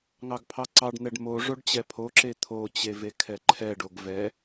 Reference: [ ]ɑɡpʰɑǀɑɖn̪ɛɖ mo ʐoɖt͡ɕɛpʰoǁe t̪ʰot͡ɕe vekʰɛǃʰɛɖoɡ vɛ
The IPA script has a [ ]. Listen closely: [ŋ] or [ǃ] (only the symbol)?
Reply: ŋ